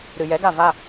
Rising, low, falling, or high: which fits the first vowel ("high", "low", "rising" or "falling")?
low